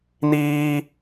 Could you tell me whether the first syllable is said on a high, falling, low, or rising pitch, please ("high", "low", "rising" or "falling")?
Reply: high